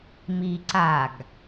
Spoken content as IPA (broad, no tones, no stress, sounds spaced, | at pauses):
m i ǀ a ɡ